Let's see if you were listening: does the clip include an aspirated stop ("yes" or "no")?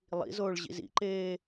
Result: no